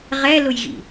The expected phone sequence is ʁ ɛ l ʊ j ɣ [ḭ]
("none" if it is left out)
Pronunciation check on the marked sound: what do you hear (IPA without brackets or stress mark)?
ḭ